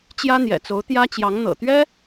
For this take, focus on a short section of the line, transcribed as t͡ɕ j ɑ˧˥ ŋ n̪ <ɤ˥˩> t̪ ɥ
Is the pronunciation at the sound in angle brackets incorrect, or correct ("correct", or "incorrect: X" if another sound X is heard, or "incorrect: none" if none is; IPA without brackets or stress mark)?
incorrect: ɤ̰˨˩